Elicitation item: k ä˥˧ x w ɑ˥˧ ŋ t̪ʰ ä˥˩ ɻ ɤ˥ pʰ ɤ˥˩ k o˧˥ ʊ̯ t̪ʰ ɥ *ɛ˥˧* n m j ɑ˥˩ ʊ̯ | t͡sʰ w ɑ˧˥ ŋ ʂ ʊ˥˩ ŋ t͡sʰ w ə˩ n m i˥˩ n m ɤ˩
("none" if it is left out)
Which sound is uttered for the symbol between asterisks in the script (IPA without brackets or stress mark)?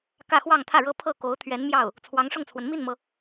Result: ɛ˧˥